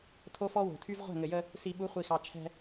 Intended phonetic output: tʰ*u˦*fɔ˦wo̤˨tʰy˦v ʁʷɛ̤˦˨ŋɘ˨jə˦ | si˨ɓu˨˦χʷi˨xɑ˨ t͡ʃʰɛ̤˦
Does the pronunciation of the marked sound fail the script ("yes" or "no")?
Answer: yes